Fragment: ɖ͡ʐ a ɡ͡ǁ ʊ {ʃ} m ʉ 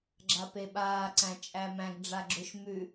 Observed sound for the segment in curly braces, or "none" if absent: ʃ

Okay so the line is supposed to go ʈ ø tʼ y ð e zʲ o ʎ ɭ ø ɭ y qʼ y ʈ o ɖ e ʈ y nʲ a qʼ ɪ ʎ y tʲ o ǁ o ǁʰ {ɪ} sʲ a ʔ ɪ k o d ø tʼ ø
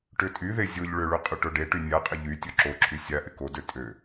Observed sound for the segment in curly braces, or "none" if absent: y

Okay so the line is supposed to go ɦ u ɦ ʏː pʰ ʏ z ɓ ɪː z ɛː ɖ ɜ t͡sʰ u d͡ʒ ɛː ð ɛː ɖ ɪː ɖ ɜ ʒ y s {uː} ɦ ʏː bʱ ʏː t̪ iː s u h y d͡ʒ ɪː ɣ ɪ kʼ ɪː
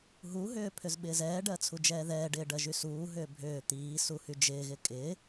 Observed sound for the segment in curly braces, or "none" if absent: uː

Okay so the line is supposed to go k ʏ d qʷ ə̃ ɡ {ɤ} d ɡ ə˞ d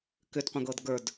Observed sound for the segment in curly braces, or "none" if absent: ɤ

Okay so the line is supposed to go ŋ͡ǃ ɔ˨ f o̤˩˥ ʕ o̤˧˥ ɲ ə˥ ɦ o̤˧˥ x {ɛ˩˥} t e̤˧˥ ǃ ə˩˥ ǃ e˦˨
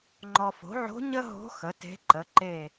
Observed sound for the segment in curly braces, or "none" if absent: ə˩˥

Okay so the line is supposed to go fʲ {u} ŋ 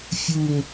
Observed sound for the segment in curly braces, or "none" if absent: u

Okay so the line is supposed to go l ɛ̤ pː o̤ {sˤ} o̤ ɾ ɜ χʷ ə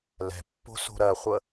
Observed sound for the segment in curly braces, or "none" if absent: s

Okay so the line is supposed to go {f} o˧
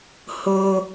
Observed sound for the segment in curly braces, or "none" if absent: h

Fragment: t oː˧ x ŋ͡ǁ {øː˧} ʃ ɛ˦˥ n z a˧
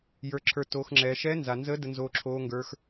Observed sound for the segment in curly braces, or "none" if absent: ɛː˧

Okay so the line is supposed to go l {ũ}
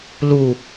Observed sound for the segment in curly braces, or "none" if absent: u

